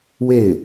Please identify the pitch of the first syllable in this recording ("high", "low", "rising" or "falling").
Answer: falling